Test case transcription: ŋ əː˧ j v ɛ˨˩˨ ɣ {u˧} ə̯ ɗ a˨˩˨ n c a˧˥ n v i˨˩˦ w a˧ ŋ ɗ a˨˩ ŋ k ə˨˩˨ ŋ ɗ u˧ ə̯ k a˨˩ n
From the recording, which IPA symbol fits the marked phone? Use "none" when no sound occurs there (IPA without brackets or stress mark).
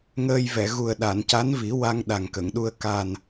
u˨˩